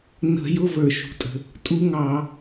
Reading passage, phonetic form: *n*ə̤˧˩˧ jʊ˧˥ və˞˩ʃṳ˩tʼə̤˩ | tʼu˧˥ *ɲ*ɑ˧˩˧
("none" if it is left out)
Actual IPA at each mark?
n, ŋ

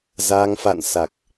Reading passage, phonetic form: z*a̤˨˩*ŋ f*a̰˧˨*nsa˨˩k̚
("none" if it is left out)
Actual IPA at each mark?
a˧, a̰˧˨

